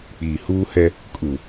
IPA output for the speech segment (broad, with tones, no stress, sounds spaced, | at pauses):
k͡p iː˨ h uː˦ h ɛ˦ | kʼ u˨